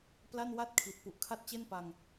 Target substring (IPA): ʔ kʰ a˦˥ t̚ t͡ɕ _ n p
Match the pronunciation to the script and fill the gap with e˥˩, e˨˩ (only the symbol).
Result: e˥˩